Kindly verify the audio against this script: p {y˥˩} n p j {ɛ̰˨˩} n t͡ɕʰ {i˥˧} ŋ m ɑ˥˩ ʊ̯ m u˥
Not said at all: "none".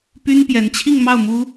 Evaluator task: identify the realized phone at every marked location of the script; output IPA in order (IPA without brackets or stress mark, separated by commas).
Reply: y˥, ɛ˧˥, i˥˧